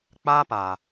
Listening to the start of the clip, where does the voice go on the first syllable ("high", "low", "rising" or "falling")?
high